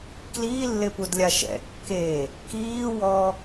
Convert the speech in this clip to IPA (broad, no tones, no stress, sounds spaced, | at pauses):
k l iː lː ɪ p u d lʲ a ʃ ɛ̰ kː e | k iː w ɔ